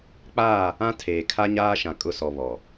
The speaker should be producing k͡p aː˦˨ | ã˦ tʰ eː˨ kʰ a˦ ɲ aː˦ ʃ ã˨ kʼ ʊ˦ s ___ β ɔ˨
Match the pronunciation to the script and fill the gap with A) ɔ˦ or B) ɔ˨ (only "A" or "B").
B